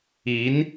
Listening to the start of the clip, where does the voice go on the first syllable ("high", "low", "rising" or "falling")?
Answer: rising